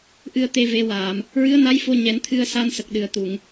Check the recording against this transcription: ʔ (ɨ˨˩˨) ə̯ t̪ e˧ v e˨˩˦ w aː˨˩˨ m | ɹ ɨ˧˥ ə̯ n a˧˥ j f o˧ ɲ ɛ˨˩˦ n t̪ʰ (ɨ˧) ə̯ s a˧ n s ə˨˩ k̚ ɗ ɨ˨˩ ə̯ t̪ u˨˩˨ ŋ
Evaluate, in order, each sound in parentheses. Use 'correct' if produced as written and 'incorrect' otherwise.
incorrect, correct

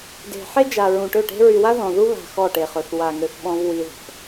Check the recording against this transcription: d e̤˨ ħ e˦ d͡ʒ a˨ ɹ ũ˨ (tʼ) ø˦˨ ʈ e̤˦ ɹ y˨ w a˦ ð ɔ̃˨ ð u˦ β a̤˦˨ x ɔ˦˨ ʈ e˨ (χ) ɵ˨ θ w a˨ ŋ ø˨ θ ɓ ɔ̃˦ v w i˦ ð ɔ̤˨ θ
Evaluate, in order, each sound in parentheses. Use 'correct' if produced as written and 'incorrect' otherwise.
incorrect, correct

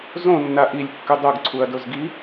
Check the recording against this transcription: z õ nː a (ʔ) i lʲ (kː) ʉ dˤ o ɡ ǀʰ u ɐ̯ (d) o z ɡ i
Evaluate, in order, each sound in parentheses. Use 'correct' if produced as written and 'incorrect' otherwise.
correct, correct, correct

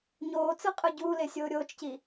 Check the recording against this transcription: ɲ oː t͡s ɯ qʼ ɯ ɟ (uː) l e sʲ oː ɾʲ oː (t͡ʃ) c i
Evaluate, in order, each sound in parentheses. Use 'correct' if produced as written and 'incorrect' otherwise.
correct, correct

